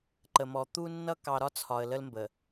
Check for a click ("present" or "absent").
present